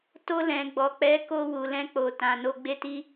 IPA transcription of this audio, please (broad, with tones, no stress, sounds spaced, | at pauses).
t o˧ l ɛ̃˨ ɡ͡b ɔ˨ k͡p ɛ˨˦ k o˧ w u˨ l ɛ̃˧ k͡p o˨ t ã˨ n o˧ ɡ͡b e˦ t i˦